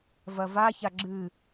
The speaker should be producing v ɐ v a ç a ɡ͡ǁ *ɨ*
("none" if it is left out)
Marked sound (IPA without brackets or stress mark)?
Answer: ɨ